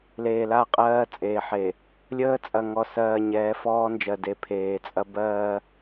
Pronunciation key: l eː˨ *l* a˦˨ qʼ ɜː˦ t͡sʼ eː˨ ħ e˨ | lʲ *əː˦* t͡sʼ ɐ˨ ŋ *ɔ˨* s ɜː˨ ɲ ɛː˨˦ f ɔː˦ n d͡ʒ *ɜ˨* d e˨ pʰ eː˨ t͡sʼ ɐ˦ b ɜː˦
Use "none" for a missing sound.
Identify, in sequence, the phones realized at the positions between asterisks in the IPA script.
l, əː˦, ɔ˨, ɜ˨

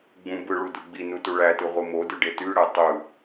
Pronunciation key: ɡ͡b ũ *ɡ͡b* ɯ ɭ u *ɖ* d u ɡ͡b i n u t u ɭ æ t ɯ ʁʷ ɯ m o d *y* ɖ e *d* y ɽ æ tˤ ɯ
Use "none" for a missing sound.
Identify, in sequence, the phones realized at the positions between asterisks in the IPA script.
b, none, y, t

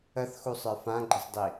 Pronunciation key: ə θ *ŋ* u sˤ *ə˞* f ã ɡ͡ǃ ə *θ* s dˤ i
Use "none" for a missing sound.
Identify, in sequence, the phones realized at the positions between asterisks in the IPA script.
x, ə˞, none

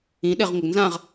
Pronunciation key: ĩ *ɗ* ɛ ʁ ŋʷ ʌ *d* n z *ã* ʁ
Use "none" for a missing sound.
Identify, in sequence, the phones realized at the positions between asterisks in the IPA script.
ɗ, ɡ, ã

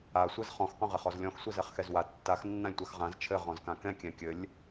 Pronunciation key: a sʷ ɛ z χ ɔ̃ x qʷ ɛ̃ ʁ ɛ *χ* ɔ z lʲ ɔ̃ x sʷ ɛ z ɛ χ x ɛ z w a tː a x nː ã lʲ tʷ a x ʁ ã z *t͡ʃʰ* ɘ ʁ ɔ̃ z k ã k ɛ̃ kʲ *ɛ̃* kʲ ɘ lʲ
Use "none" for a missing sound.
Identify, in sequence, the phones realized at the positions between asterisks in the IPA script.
χ, t͡ʃʰ, ɛ̃

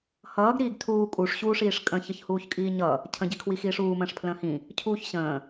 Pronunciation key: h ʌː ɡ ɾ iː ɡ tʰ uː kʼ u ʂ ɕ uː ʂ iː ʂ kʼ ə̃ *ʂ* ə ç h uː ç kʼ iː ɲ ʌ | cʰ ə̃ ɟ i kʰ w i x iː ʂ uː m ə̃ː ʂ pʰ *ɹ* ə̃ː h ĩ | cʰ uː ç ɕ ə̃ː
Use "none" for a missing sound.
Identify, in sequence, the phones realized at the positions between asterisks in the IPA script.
ç, l

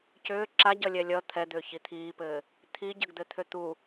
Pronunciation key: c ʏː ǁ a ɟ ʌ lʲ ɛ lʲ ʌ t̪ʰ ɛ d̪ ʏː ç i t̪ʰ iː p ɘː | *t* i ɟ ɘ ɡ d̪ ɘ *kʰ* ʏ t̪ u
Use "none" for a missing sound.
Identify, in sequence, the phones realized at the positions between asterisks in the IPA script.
t̪ʰ, t̪ʰ

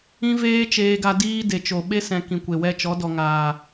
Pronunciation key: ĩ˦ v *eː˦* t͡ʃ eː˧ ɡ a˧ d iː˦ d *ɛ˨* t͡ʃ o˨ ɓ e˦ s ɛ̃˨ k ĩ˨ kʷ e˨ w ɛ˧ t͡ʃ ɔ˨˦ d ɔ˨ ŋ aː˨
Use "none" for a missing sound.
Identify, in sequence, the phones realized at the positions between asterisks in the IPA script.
eː˦, e˨

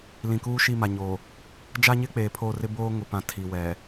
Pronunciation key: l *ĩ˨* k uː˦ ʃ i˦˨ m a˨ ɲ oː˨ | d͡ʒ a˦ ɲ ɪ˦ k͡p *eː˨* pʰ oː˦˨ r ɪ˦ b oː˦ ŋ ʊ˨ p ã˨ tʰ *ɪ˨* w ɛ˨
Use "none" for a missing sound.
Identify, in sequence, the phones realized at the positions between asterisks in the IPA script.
ĩ˨, eː˨, i˨

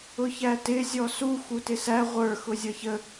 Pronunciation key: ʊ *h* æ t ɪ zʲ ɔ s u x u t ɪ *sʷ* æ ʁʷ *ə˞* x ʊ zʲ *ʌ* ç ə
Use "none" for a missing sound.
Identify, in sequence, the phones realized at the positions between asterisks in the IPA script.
ç, s, ə˞, ʌ

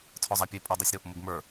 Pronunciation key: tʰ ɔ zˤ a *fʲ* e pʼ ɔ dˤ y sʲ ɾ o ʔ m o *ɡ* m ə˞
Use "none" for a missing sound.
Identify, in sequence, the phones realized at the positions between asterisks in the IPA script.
pʲ, ɡ

